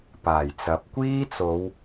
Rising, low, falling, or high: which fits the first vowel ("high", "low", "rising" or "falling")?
low